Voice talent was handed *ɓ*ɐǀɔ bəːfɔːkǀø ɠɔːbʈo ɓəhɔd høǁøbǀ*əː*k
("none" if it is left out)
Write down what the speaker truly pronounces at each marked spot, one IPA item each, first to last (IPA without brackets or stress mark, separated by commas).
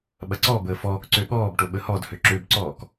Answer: ɓ, ɔː